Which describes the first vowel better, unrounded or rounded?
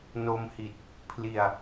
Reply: rounded